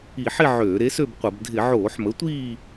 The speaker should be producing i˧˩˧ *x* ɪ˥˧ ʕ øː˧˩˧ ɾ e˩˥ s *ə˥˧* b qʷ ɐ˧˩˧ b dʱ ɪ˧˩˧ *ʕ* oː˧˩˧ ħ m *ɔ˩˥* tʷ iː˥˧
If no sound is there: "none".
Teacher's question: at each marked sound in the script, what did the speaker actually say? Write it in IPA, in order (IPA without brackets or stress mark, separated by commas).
ħ, ø˥˧, ʕ, ə˩˥